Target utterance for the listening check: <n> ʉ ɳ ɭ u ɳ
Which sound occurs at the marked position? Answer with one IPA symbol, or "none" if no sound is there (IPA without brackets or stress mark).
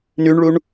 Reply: n